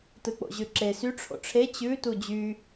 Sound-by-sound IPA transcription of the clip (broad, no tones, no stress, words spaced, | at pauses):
tɯk͡po̰ʑʉǁe sy ʈ͡ʂʰo̰ʈ͡ʂʰe t͡ɕʉ tud͡ʑy